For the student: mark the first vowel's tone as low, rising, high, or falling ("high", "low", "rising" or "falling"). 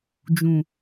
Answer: low